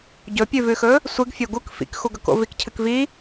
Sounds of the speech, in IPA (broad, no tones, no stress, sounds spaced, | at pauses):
ɟ ɵ pʲ ʉ v ʉ x ɵ | sʷ ɨ ɡ fʲ o ɡ u k f ḭ k x u ɡ ɵ k o̰ v i k cʰ ɨ k v i